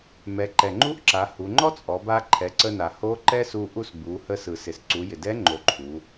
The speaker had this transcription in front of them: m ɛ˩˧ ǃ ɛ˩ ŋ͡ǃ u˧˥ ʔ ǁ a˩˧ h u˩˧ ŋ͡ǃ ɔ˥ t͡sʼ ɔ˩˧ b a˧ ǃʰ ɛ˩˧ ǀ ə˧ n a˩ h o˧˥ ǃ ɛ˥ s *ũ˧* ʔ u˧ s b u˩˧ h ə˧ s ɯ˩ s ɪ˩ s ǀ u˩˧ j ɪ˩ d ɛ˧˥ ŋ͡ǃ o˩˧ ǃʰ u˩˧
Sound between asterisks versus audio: incorrect: u˧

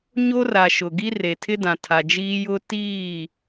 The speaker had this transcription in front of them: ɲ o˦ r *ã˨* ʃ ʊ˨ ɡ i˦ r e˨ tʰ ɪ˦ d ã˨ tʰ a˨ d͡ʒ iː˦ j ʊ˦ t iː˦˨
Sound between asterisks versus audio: incorrect: a˨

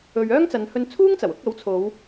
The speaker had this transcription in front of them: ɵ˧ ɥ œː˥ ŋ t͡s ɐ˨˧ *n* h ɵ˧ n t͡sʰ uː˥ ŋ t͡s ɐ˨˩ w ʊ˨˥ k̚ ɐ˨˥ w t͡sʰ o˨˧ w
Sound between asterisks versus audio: correct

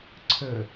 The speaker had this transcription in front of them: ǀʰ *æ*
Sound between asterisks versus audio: incorrect: ə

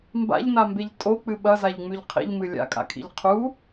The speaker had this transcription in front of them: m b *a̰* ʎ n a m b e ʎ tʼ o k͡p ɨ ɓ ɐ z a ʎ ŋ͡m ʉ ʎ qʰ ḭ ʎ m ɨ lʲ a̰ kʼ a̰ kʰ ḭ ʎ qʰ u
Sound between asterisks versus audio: correct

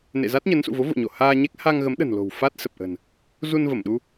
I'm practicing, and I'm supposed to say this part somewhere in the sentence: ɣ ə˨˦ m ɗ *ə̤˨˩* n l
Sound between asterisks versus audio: correct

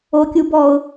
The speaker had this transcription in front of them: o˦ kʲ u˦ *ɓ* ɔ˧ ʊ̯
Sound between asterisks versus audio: incorrect: b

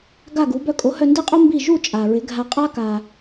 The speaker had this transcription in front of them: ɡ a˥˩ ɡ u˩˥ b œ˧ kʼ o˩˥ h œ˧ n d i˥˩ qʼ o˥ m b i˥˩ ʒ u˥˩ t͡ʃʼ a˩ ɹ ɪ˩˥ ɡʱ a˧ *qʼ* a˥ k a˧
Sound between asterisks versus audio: correct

